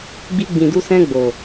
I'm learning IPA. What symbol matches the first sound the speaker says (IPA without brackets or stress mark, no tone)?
ɡ͡b